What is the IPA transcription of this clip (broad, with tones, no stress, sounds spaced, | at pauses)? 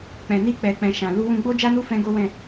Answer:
k͡p ɛ̃˨ n i˧ k͡p ɛ˨ k͡p ɛ̃˨ ʃ ã˨ l u˧ w ũ˧ ɡ͡b o˦ d͡ʒ a˦ n u˦ f ɛ̃˦ ɡ o˦ w ɛ̃˦˨